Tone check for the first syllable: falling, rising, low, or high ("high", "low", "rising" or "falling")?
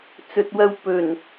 low